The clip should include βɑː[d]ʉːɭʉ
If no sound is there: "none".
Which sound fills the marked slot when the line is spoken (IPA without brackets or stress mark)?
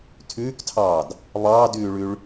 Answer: d